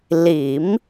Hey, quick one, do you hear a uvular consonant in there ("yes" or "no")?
no